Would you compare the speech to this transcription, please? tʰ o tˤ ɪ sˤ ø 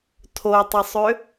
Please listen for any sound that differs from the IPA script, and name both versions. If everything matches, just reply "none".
none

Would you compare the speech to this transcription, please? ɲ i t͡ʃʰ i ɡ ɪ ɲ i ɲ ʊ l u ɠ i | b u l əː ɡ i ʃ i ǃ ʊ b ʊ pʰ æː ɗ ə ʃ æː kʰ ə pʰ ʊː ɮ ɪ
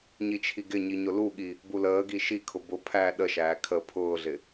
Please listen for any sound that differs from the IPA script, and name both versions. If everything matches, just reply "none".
ǃ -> kʰ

